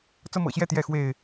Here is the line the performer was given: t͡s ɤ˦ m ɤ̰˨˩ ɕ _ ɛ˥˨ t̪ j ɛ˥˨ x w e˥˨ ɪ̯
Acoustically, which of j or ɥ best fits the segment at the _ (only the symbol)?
j